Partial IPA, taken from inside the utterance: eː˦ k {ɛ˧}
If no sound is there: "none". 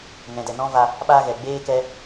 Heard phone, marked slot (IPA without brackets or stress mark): ɛ˧